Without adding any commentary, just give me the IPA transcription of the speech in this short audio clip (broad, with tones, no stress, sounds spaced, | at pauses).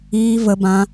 iː˧ v ə˧ b ã˧